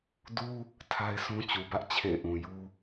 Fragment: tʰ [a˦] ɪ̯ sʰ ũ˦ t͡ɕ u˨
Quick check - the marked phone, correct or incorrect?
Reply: correct